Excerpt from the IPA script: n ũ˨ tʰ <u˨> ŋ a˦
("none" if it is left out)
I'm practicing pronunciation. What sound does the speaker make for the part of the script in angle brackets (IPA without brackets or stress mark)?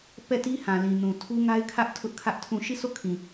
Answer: u˦